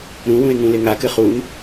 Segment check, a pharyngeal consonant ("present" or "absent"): absent